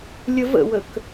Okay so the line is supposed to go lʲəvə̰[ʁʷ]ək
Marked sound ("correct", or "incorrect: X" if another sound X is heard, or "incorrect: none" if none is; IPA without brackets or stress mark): incorrect: w